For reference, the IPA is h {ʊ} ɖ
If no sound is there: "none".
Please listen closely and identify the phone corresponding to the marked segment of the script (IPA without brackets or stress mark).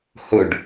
ɵ